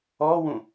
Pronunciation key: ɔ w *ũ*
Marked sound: correct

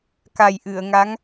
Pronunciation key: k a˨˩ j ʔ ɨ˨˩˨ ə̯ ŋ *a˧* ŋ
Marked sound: incorrect: a˧˥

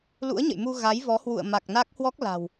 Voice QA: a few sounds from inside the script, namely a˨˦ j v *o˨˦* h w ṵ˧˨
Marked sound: incorrect: ɔ˨˦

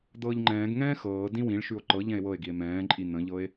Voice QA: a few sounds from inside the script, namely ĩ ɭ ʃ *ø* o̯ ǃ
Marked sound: incorrect: ʉ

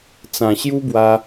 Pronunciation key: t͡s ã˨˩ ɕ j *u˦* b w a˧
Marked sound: correct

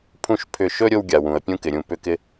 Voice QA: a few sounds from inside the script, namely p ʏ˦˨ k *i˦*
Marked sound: incorrect: ɪ˦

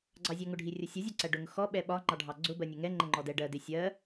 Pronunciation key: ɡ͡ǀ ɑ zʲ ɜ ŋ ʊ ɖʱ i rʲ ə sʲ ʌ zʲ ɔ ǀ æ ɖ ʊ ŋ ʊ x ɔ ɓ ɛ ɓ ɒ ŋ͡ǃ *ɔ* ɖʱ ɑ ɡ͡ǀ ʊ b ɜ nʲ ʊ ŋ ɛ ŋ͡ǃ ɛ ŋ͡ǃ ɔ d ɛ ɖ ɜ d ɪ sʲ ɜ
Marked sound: incorrect: ɑ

